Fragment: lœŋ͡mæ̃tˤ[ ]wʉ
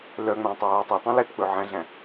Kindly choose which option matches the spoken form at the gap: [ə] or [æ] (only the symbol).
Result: æ